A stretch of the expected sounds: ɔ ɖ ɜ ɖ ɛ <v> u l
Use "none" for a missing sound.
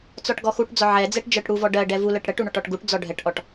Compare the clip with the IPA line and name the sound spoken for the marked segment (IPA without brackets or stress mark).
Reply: v